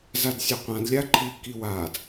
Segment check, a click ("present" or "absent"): present